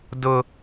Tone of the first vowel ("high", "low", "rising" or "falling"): high